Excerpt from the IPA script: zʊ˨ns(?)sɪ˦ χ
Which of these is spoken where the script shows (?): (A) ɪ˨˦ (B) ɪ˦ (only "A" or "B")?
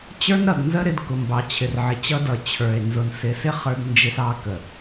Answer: A